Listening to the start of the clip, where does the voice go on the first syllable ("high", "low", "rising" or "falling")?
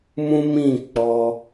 high